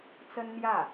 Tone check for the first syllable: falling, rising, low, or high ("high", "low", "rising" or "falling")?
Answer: high